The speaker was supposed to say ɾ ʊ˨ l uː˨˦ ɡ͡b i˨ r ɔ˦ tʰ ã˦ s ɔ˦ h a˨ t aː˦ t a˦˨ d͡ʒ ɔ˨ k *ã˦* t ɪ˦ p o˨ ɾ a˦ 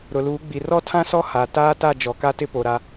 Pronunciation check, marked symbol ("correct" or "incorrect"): incorrect